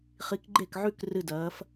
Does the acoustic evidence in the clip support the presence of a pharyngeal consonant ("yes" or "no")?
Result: yes